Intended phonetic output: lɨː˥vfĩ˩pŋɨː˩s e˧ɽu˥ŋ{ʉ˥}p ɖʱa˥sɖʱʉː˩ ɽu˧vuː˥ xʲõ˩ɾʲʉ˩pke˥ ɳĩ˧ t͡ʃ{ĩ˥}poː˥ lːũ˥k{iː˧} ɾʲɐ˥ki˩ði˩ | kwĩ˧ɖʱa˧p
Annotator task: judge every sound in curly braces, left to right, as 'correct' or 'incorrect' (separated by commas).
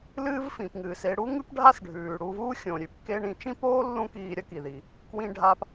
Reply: correct, correct, correct